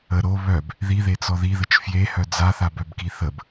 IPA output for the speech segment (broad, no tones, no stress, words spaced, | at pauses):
ə ɾo βœb | ðiðet͡sɔ ðiðət͡ʃ fjehœ d͡zaθabœbki θəb